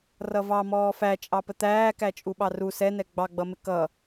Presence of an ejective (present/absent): present